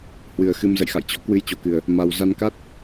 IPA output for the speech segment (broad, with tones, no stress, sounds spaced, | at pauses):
h w ɨ˨˩ ə̯ x ɨ˧ m z ə̰˧˨ j x a̰˧˨ j t͡ɕ ɔ̰˧˥ k w ɨ˧ j t͡ɕ o˨˩ k ɨ˨˩ ə̯ | m a˨˩ w z a˧ n k a˦˥ t̚